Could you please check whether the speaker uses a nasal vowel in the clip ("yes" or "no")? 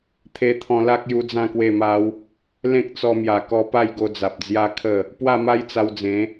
yes